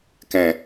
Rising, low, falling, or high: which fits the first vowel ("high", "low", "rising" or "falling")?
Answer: low